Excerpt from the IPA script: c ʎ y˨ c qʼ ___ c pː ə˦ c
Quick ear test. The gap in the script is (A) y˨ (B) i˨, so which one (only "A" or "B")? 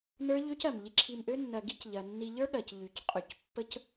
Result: A